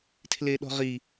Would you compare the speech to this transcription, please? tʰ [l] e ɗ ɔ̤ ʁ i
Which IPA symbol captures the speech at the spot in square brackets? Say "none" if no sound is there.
l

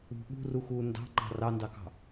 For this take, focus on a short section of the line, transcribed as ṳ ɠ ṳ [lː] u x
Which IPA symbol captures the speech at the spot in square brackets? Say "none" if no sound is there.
r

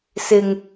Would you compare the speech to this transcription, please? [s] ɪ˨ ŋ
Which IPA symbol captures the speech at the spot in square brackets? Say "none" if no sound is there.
s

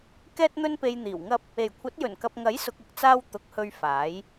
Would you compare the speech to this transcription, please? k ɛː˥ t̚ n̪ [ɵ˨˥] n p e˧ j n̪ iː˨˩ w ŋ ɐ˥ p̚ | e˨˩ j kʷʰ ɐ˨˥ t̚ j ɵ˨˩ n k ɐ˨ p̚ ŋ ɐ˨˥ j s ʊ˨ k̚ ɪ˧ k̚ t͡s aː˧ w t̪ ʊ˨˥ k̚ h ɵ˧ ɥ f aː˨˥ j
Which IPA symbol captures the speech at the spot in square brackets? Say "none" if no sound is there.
ɵ˥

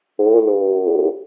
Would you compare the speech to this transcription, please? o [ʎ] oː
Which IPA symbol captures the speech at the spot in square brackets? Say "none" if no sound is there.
l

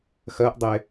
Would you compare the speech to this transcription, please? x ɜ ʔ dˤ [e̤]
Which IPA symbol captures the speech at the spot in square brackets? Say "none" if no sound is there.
e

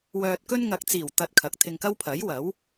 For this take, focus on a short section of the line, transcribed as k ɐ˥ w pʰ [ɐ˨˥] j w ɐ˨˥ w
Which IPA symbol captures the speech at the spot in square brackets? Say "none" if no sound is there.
ɐ˨˥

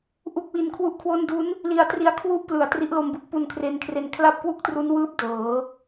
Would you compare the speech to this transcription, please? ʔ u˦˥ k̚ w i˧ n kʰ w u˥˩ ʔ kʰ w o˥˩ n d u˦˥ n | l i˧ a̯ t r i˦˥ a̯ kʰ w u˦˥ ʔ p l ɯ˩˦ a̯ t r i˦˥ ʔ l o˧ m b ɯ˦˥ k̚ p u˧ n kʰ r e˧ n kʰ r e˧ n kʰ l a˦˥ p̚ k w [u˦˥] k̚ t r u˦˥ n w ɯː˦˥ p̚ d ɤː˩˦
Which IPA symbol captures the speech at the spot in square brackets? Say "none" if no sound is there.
u˦˥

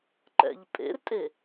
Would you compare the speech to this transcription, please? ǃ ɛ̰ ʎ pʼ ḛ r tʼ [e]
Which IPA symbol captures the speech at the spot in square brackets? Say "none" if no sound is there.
e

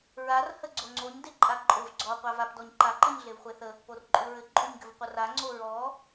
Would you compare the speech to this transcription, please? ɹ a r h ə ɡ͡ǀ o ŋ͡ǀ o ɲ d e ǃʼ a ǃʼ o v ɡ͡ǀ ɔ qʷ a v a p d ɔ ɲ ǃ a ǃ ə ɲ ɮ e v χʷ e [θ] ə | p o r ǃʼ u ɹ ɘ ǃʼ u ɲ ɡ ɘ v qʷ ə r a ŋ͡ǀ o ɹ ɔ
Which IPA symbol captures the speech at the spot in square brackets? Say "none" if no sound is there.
θ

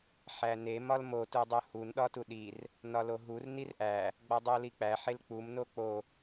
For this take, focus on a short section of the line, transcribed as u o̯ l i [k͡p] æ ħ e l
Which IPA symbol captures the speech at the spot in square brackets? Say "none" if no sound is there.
k͡p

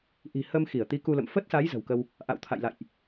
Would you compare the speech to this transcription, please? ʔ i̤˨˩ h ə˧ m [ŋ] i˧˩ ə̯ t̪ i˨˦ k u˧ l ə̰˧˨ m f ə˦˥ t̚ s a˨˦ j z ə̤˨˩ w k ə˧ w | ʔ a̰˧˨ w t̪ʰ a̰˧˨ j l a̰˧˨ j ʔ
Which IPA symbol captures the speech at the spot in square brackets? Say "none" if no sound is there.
x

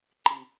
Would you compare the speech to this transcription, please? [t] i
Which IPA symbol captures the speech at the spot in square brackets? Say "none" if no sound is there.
ǃ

